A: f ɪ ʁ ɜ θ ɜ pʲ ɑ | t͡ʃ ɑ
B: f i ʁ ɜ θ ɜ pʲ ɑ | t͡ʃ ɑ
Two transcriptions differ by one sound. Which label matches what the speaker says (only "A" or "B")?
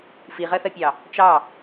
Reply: B